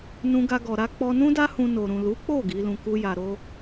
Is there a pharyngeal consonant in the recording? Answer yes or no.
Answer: no